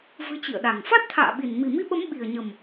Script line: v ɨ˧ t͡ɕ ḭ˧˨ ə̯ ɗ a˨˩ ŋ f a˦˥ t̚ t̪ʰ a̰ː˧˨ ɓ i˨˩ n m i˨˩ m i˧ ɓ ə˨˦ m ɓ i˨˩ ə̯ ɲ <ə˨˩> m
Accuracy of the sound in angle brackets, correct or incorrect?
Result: correct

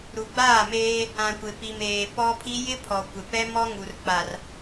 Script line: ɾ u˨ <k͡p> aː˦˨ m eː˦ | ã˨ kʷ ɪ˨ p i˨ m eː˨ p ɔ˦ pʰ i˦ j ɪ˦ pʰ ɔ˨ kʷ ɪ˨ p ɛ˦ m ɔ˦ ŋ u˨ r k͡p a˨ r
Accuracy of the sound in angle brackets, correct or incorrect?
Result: incorrect: ɡ͡b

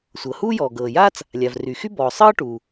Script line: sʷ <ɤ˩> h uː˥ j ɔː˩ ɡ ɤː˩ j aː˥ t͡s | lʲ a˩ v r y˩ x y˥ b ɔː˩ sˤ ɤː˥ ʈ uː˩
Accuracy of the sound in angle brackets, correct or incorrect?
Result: correct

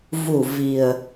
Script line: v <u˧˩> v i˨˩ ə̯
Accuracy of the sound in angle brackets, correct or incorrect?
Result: correct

